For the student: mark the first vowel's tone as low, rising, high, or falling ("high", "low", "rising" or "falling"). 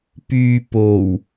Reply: low